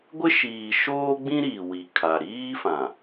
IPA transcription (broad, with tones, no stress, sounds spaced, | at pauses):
ɡʷ ɪ˦ ʃ iː˨ ʃ oː˦ ɡ͡b ĩ˦ ɾ iː˨ w i˨ kʰ a˨ ɾ iː˦ f ã˨